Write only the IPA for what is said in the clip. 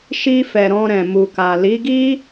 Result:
ʃi˧fɛ˨ ɾɔ̃˧ɾɛ̃˨mu˨ka˨ li˨˦ɡi˦

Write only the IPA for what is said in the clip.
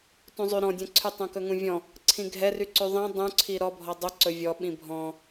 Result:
tũzˤy ɾɔ̃dʲɛ̃ǀʰy tˤõkɵŋũvʲɔ̃ | ǀʰĩɡʱɛryǀy ðˤĩ dˤũǀʰi ɾɔbʱɔ dˤuǀɵ vʲɔɓĩ bʱɔ̃

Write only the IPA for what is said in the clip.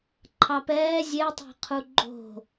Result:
ǃʰɑpɛː zʲetˤɛ̤qʰu ɡ͡ǃo̤

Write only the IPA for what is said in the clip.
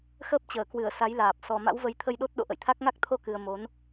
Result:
xəː˦˥p̚t͡ɕəː˧˩kwɨ˧˩ə̯ sa˨˦jlaː˨˩p̚ sɔ˨˩ma̰˧˥wvə˨˦j t̪ʰə˧jɗo˦˥t̚ɗo̰˧˨ ʔə̰˧˨jt̪ʰa˦˥k̚ŋa˦˥k̚ t̪ʰo˧kɨ˨˩ə̯ mo˨˦n

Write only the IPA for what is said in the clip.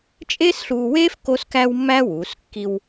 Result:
t͡ʃʼe˥sɬuː˧weː˥f ko˥skæ˥wmːæ˥wuː˩˧s kːi˧w

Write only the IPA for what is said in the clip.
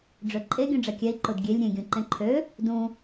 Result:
ɖ͡ʐøǃʼe ɡʲũɖ͡ʐɛkʲɛi̯ ǃʊdɡʲelʲ ɾʲẽ ɡʲũǃẽǃʰø | dũ

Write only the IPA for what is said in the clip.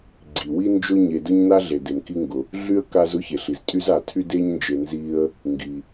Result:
ɡ͡ǀi˩wi˥nd͡ʒʊ˥ ɲe˨dʊ˥ɲna˥ ɮe˩de˩mki˦ŋɡʊ˩ | ɮy˥ə̯ka˦z ʊ˥çe˩ɬ i˩ztʼy˥za˨ tʰy˦de˦ɲnd͡ʒe˨ nzi˦ə̯ | ŋɡi˩

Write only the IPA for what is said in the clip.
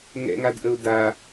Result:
ŋɛ̰ŋadʔəʊ̯ da

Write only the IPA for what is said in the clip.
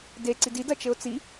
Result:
de ǀidid ɐt͡ʃɘʊ̯t͡si

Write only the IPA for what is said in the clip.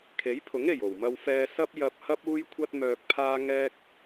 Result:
kʰe˨˥jpʰʊ˨˥ŋe˨˩j o˨˩wmɐ˧wfɛː˧ sɐ˥p̚ jɐ˧p̚hɐ˥p̚ uː˥jkʷʰɐ˥t̚ mœː˧k̚pʰaː˥ ŋɛː˥k̚

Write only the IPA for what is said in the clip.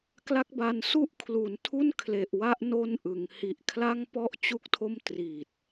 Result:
kla˥˩k̚ba˧n su˥˩ʔkʰlu˩˦n tʰu˥˩nkʰle˨˩ʔwa˦˥ʔ no˥˩nʔɯ˩˦ŋ hi˨˩ʔkʰla˥˩ŋpɔ˥˩ʔ t͡ɕu˥˩k̚tʰo˥˩m tri˨˩t̚

